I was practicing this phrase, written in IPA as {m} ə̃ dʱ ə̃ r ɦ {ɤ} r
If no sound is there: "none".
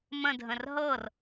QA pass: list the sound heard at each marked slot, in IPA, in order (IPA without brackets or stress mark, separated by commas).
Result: m, ɤ